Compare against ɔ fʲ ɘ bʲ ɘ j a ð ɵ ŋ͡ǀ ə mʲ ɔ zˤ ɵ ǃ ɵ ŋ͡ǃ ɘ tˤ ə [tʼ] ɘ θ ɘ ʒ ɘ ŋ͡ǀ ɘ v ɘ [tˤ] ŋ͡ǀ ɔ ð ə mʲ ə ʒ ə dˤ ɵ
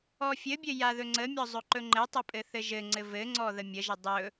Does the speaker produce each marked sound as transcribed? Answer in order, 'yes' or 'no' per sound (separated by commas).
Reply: no, no